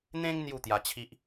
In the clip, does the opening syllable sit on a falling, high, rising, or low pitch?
high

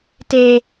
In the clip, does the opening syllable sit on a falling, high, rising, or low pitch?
high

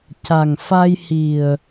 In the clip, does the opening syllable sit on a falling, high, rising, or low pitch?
low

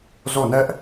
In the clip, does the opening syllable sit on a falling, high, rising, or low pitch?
falling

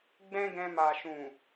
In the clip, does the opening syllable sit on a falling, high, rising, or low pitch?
high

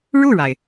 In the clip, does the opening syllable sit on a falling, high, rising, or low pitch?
falling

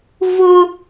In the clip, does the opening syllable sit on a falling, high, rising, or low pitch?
high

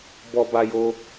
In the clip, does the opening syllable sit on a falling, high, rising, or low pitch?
high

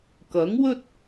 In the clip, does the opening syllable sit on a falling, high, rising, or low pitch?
rising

